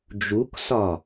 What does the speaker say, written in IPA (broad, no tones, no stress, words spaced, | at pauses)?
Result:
d͡ʒuksɒ